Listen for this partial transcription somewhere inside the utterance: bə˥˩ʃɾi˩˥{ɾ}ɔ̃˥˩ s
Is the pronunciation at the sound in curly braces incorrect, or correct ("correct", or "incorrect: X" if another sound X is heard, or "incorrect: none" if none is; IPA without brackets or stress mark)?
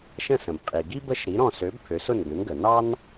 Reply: correct